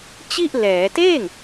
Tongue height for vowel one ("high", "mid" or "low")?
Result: high